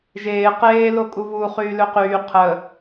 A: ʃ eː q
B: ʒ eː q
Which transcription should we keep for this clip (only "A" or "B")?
B